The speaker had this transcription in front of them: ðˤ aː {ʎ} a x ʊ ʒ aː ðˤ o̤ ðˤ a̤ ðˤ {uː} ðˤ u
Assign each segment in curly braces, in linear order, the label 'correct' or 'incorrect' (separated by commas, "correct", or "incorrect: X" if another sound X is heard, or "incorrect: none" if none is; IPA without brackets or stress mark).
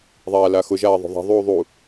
incorrect: l, correct